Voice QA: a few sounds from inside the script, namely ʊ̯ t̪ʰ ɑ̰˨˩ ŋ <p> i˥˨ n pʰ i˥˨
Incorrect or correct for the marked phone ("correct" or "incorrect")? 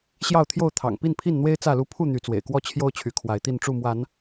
correct